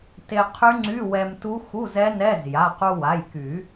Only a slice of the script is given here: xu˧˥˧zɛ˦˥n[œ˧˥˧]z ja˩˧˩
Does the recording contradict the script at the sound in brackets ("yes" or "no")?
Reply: yes